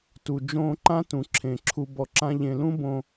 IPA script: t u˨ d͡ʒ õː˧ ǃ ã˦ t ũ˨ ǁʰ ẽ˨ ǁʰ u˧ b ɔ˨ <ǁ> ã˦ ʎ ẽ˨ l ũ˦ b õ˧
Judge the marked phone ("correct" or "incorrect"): correct